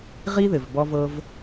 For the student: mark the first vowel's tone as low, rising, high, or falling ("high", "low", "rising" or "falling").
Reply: high